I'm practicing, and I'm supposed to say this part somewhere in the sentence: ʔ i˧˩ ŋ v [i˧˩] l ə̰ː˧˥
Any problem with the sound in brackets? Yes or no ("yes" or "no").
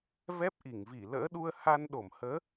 no